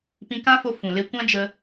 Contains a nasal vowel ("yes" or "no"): yes